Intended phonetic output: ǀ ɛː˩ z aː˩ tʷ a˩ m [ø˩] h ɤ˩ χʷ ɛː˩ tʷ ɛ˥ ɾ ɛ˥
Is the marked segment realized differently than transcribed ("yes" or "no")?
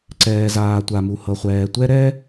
yes